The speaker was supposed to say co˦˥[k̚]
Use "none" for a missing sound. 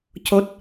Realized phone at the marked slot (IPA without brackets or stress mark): t̚